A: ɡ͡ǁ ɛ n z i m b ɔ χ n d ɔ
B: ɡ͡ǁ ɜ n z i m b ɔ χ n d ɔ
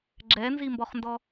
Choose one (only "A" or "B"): A